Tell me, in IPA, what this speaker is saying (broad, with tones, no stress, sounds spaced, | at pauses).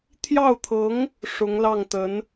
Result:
t̪ʰ j ɑ˥˩ ʊ̯ t̪ʰ ɤ˧˥ ŋ | ʂ ʊ˧˥ ŋ l ɑ˥˩ ŋ t̪ ə˧˥ n